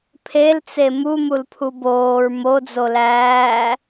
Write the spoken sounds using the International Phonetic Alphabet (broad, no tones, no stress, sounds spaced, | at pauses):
pʰ e l t͡s e m u m u l pʰ u b oː ɹ m o d͡z o l æː